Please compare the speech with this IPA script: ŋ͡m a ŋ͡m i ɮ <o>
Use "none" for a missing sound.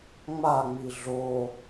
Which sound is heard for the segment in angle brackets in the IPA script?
o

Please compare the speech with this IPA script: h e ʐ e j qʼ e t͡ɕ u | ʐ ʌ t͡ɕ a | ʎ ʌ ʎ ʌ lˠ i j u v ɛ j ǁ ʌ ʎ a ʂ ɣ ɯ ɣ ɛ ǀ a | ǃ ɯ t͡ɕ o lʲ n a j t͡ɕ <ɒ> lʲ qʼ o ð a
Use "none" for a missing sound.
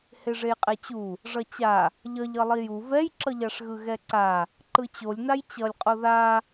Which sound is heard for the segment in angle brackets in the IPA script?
ʌ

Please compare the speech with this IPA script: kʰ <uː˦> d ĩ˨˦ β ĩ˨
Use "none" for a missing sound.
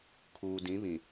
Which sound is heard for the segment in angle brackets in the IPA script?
uː˨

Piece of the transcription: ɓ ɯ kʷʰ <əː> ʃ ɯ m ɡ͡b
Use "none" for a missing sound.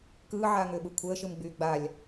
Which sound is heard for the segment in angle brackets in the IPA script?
əː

